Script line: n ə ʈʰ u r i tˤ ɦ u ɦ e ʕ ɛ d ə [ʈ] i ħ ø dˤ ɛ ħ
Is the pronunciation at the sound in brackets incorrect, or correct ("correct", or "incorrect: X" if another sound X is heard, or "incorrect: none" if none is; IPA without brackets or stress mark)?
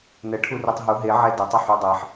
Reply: incorrect: tˤ